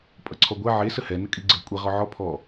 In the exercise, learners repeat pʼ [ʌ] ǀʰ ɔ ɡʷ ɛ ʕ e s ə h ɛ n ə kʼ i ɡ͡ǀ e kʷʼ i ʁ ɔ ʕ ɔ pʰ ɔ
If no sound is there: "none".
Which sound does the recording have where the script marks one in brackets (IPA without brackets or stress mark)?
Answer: ʌ